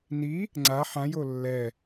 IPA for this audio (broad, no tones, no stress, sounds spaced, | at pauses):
n i | ŋ͡ǀ a ħ ã j o lː ɛ